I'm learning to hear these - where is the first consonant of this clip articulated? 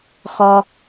velum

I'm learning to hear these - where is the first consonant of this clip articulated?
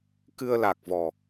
velum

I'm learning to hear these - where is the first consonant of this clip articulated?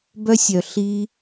lips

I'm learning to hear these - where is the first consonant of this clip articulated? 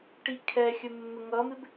retroflex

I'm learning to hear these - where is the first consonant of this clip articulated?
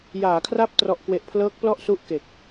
palate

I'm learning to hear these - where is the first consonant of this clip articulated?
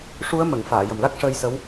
retroflex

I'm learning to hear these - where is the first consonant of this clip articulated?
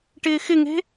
retroflex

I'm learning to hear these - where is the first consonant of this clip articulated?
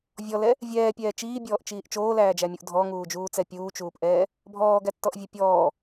lips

